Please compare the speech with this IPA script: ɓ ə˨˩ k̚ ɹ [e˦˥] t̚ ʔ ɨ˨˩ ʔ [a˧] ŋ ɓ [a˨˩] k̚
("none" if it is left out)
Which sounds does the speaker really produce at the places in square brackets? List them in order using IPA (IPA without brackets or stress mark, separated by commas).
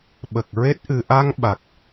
e˦˥, a˧, a˨˩